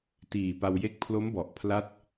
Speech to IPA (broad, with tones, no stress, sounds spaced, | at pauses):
t iː˨˩ p a˧ w j e˦˥ k̚ pʰ l o˦˥ m b ɔ˨˩ ʔ pʰ l a˥˩ t̚